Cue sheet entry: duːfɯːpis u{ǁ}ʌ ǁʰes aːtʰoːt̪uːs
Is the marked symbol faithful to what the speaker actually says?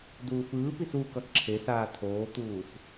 no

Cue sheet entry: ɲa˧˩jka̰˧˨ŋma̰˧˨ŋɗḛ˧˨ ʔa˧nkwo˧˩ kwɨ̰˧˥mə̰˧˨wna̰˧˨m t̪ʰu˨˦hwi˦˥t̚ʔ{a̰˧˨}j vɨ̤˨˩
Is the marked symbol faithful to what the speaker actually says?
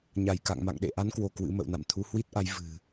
no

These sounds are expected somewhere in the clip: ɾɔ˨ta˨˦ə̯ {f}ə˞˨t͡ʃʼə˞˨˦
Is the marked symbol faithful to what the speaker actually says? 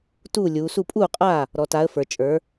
yes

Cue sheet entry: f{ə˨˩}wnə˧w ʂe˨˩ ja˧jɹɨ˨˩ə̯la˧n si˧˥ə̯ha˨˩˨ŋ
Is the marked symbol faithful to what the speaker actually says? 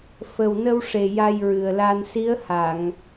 yes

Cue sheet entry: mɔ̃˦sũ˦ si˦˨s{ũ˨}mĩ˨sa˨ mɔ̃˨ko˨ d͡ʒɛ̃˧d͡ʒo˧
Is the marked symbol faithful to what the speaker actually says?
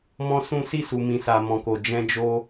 no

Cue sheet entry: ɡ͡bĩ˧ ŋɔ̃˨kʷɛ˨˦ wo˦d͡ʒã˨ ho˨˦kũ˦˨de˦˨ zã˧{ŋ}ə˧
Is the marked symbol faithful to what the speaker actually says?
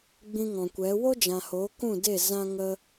yes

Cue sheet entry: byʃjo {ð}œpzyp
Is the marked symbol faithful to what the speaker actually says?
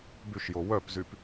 no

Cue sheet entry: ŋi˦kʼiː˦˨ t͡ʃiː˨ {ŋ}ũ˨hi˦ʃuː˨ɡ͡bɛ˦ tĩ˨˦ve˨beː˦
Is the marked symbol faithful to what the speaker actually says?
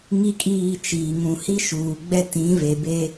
yes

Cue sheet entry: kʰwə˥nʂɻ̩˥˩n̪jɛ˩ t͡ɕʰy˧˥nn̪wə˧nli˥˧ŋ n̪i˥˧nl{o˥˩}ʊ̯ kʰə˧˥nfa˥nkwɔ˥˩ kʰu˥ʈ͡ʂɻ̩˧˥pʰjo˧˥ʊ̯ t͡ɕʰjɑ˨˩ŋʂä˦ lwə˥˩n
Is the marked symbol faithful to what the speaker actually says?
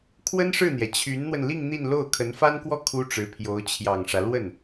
yes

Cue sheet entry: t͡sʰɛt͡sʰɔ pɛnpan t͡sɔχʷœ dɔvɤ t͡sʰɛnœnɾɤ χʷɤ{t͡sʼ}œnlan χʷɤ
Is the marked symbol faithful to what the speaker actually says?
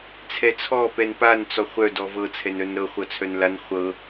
no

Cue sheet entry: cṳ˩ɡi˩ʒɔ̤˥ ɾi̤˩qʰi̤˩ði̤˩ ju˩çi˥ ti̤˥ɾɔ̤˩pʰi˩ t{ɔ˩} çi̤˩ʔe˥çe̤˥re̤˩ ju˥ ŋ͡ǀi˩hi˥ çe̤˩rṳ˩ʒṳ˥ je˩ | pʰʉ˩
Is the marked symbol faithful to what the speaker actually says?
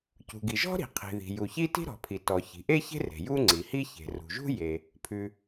yes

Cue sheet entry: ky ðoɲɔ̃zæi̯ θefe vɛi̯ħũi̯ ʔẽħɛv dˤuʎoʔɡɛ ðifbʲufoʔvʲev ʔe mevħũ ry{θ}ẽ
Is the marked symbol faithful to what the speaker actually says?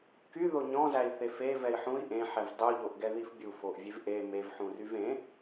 no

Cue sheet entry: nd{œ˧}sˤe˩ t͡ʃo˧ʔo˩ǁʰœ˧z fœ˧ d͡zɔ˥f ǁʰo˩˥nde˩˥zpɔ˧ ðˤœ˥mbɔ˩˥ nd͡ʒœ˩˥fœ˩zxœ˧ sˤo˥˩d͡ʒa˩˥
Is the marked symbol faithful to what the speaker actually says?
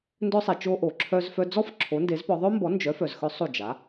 yes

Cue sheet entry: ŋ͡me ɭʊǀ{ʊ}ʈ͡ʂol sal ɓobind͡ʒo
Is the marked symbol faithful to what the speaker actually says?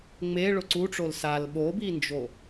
no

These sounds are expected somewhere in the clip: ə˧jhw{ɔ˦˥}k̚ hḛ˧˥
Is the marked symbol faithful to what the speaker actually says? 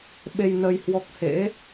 yes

